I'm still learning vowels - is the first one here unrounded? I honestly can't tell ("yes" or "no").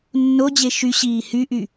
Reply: no